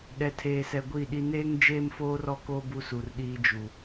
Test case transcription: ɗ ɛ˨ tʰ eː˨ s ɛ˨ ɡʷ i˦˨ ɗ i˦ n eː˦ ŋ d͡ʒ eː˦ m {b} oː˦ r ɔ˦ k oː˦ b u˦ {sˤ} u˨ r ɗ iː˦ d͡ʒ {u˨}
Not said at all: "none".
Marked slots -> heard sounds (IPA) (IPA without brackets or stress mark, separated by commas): f, s, u˨